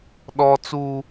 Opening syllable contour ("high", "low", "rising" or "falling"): high